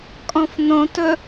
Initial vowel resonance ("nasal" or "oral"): nasal